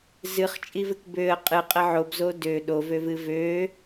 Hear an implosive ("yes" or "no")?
yes